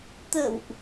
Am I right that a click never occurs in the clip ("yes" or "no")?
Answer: yes